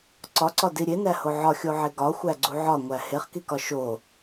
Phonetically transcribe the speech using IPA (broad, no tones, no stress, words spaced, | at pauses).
ǀɒǀɒdi ɾʲenæho ʕɒxʲoʕe ɡɒxʷæɡ͡ǀu ʕɒŋʷæ heχkikɒ ʃo